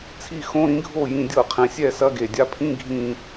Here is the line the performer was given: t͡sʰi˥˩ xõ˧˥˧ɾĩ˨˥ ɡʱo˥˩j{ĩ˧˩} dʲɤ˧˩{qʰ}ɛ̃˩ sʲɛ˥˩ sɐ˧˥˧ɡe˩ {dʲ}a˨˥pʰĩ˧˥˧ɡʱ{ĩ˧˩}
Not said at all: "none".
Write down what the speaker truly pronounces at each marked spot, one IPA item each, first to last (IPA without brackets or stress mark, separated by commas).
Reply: ĩ˧˩, qʰ, dʲ, ĩ˧˩